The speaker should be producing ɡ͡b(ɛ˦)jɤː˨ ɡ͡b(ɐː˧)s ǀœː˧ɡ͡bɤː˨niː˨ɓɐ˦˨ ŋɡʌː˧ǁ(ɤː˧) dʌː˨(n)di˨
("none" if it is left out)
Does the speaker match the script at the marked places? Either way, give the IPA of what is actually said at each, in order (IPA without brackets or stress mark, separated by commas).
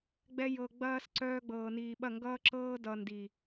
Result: ɛ˧, ɐː˧, ɤː˧, n